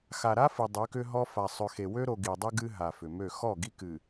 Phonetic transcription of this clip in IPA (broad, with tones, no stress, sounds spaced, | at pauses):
x a˨ ɾ a˦ f ɨ˨ dˤ ʏ˨˦ k ʏ˦ ɦ ɔ˦ f a˨ sˤ ø˨ x e˨ w ø˦ ɾ o˨ ɡ i˨ dˤ ɨ˦ ɡ ɨ˦ ɦ a˨ f ʏ˨ m ø˦˨ x ɔ˦˨ ɡ i˦ k ɨ˨